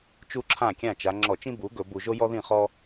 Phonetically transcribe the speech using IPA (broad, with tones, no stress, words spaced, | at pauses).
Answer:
t͡ʃu˥˧ǁʰã˥˩kʲã˥˩ t͡ʃa˩˧ŋ͡ǁɔ˧˩˧ t͡ʃĩ˥bu˩˥ɡɵ˧˩˧ bu˧˩˧ʒo˥jɔ˥ðĩ˥˩ χɔ˥